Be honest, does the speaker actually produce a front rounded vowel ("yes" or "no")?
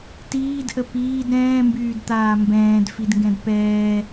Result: yes